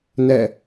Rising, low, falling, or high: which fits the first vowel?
falling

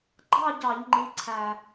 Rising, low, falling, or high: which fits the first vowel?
falling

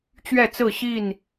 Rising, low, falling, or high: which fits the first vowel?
falling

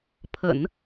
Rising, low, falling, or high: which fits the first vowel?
low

